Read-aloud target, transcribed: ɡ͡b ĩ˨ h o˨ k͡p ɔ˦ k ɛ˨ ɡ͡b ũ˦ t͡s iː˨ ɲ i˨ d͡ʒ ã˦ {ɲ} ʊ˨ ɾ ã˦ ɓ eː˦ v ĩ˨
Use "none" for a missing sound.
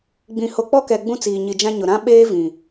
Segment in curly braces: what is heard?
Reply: ɲ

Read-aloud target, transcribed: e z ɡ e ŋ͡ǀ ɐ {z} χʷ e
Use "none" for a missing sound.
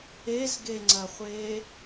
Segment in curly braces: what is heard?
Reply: none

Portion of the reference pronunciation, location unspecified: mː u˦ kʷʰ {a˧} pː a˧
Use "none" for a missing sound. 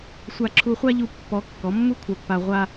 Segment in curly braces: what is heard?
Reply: a˧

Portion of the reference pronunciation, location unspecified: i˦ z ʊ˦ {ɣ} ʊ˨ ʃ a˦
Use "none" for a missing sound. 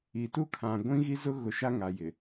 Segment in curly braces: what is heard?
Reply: ɣ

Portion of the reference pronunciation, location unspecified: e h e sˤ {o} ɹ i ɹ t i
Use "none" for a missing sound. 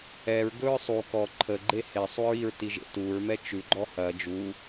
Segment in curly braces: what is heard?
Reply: u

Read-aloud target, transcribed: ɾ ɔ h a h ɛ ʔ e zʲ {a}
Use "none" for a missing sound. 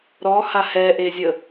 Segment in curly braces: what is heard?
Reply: ə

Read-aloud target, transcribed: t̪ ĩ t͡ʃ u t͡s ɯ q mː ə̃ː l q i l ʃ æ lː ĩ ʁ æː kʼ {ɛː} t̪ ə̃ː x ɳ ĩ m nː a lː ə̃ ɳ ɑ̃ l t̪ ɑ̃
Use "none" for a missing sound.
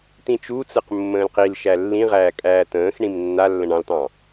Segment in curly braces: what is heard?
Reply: æː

